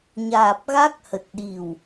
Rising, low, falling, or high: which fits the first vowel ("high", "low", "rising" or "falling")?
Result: low